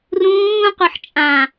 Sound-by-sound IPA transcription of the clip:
rũː qʷɤħt͡ʃʼã

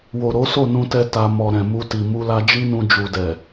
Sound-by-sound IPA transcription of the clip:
wo˨ɾo˨˦ so˦˨nũ˧tɛ˧ ta˧ mɔ˨ɾɛ̃˨mu˧ti˨ mu˧la˧d͡ʒi˦nũ˧ d͡ʒu˨dɛ˨

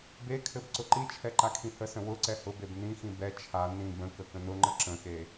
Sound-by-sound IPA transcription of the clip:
bekʰɘb ǀʊǃit͡ʃʰɛ ǃakʰĩhəsə̃ wʊǀɛ hʊbeb nĩxĩ bɛ t͡ʃʰa nĩb ə̃kə kə̃nʊŋ͡ǃə ǁə̃xe

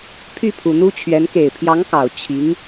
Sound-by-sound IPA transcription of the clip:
pʰy˥˩pʰu˨˩n̪u˥t͡ɕʰɥɛ˧˥n ke˨˩ɪ̯pʰjɑ˧˥ŋkɑ˨˩ʊ̯ t͡ɕʰi˧˥ŋ

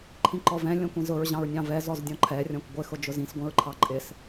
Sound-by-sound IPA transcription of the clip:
ǃʰĩǃɔvɛ̃ lʲɔ̃kʷĩzʊɹ ʑɑ̃ɹnʲɑ̃vɛ zɔzdʲɔ̃ǃʰɛ rʲɔ̃kʷɡʷɪ xʊd͡ʒʊzĩs ɡʷĩɹǃʰɑǃʼɪs

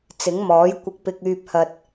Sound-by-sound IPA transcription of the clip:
t͡sɪ˨˥ŋmɔː˨˥jkʷɪ˧k̚pɪ˧k̚ yː˧p̚hɐ˧t̚

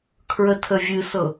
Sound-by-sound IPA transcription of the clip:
kʰɹətʰəvʲɨsɤ

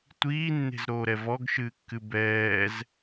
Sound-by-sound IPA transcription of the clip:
tʷiːnːe̤zɾoːɾɛ vɔɡʃɨːkːɨ bɛːz

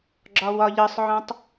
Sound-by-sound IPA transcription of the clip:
ɡ͡ǁɒwɒʎɤsˤʕɔ̃tˤ

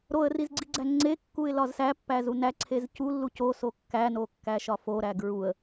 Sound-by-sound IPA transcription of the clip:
ɾoə̯rizɡ͡ǀiɡ͡ǀæ ŋ͡ǀekːuɪ̯lɒz sæpːæzu næǀʰez culːu coso kːænokːæʃɒ foɾæ ɡɹuə̯

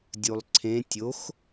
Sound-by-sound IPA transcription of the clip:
dʲulˠǀʰẽ tʲox

